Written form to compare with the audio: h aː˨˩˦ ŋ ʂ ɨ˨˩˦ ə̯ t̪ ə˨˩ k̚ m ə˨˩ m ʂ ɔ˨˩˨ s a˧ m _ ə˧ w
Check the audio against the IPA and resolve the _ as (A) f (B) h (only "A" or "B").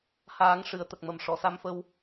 A